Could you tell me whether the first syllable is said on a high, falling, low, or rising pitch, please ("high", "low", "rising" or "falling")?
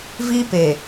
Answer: high